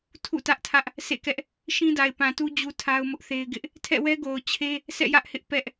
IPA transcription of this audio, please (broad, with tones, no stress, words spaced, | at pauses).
tʰṵ˦˨tä˦ʔtʰä˦ʔ | sḛ˦˨kɛ˦ʔ | ʃĩ˦da˨ɪ̯pã˨tu˦ d͡ʑu˦tʰa˦ʊ̯mʊ˦ʔθe˦ɪ̯ ɡɪ˦ʔ | tʰɛ̰˦˨wɛ˦ ɡo˨ʊ̯t͡ɕʰe˦ | sʰɛ̰˦˨jä˦ʔhɪ˦ʔ pɛ˦ʔ